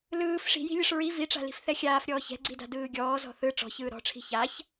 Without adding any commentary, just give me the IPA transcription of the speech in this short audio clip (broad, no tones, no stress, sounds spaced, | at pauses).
l ɯː f ʂ i̤ j i̤ lʲ ɯ ʂ ɹ i v i ʈ͡ʂ a̤ l i̤ f θ ɛ xʲ aː f ɾʲ ɔː ç ɛ̤ ɡ͡ǀ i d a̤ d ɯː ɡʲ ɔː z ɔ̤ θ ɯ ʈ͡ʂ ɔ̤ ç ɯː ɾ ɔ̤ ʈ͡ʂʰ i̤ ç a ç